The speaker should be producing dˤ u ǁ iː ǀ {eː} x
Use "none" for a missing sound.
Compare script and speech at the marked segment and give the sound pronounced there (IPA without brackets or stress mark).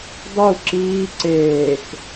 eː